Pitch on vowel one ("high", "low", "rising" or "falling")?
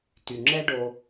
low